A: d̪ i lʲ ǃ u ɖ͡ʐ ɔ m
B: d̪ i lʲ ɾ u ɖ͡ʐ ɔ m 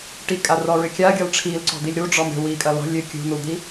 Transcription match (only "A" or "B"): B